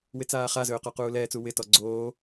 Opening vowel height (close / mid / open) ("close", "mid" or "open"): close